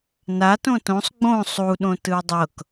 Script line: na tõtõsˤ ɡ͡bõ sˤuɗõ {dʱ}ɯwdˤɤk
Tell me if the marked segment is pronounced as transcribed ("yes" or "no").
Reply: no